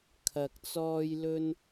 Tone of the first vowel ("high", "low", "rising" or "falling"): low